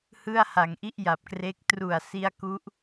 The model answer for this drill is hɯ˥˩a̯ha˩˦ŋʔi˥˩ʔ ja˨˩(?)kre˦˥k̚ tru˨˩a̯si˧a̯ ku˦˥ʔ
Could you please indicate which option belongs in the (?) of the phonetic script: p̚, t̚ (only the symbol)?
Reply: p̚